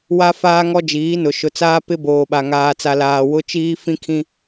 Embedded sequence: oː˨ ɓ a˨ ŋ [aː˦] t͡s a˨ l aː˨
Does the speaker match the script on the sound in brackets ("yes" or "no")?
no